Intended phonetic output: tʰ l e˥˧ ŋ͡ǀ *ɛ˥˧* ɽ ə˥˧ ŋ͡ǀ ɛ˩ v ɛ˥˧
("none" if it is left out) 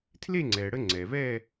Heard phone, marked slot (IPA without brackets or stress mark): ɛ˩